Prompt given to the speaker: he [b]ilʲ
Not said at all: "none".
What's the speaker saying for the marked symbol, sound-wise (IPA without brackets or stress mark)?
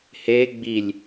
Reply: ɡ͡b